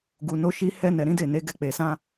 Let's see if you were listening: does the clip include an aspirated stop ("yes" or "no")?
no